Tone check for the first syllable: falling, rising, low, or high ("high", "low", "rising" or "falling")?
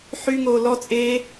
high